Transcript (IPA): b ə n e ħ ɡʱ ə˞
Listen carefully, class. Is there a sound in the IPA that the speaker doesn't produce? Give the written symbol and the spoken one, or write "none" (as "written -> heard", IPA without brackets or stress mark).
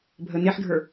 b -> bʱ